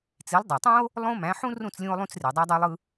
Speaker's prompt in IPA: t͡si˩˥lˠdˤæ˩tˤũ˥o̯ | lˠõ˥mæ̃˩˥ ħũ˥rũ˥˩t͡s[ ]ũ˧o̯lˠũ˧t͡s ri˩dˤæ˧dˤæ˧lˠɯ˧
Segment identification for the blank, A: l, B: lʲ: B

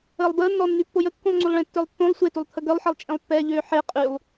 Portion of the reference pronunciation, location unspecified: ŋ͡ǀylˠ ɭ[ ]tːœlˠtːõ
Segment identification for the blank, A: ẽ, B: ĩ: A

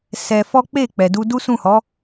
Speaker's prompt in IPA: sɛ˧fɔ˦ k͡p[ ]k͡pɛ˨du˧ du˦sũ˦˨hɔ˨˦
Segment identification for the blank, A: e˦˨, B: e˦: A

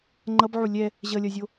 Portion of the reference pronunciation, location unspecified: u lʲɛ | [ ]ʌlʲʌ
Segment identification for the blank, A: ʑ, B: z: A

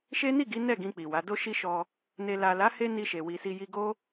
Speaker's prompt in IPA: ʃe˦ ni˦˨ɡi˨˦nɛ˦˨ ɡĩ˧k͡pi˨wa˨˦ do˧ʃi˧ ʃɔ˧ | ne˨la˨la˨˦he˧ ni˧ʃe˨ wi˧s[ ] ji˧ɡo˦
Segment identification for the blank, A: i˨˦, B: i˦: B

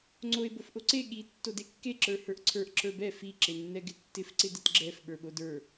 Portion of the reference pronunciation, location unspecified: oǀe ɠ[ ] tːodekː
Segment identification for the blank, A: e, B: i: B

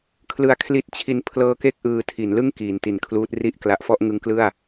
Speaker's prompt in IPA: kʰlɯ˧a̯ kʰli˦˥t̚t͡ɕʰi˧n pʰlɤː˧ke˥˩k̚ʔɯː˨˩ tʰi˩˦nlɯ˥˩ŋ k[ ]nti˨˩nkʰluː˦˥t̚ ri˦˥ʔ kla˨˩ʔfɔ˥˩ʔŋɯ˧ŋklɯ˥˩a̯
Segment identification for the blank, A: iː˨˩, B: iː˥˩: A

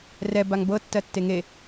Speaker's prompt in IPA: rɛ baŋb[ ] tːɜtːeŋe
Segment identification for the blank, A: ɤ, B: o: A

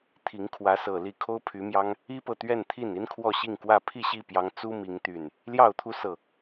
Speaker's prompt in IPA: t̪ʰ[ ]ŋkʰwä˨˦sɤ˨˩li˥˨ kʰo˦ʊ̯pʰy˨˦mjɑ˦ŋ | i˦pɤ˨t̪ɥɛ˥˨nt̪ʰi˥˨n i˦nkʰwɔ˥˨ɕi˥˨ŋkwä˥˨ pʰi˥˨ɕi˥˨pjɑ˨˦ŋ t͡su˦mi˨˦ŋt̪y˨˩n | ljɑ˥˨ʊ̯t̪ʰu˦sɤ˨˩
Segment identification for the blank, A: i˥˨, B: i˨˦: B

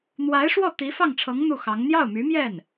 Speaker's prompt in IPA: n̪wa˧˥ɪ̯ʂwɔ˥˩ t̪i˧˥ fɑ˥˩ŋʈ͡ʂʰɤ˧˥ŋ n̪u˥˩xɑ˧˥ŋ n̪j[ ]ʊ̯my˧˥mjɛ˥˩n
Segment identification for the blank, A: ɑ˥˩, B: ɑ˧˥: A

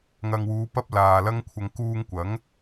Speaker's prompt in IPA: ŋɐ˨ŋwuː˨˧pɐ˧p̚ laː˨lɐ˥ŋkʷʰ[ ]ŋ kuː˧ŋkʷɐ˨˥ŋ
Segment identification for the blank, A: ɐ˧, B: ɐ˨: A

